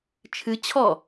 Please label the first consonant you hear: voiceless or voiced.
voiceless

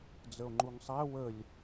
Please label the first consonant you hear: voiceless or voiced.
voiced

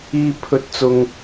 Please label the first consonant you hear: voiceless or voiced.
voiceless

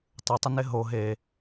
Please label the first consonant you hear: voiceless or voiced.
voiceless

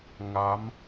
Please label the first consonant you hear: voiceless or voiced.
voiced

